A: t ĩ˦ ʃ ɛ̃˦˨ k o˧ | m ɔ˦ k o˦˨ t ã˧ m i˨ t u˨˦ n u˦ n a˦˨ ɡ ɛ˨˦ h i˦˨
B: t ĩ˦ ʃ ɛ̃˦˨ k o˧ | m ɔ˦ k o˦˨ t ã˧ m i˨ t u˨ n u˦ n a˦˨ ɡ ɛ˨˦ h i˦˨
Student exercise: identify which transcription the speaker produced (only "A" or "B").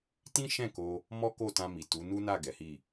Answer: A